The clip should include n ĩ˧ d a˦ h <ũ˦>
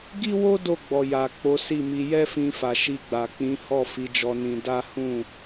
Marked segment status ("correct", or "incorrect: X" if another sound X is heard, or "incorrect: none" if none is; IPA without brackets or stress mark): incorrect: ũ˦˨